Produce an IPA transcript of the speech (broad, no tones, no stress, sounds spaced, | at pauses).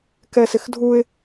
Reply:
k ɛ s ɪ x dʱ u ɪ̯